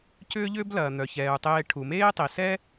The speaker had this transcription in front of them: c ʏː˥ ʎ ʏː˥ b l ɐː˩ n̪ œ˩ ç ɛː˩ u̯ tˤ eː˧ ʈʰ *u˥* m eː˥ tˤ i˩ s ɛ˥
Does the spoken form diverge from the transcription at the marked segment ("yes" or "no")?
yes